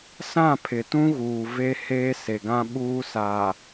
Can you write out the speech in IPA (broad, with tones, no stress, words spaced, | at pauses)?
sã˦˨pʰɪ˨tũ˦ɣuː˨ ve˦heː˦se˨ɡã˦ ɓuː˦ saː˨